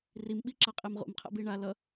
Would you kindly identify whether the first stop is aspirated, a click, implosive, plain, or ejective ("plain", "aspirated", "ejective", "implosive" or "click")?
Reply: implosive